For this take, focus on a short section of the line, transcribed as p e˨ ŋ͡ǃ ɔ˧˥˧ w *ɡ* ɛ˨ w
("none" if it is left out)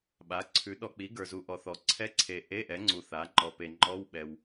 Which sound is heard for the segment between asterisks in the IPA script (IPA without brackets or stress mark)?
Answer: ɓ